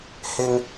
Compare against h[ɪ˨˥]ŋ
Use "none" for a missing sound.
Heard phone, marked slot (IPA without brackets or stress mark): ɪ˧